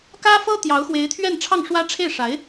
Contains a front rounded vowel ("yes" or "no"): no